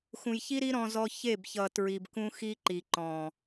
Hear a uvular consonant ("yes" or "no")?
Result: no